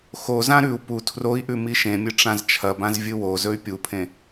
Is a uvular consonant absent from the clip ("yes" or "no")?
yes